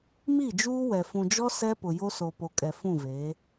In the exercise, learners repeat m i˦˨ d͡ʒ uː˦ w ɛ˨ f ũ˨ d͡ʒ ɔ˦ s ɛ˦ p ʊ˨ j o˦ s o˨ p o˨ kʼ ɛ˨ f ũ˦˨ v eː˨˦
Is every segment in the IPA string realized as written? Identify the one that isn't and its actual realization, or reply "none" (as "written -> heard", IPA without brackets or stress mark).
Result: none